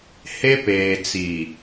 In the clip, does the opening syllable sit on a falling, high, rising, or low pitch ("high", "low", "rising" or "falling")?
high